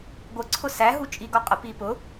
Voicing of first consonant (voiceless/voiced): voiced